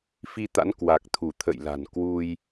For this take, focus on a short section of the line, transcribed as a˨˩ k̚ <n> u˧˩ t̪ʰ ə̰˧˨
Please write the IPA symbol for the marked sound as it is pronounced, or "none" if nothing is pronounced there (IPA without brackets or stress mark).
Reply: t̪ʰ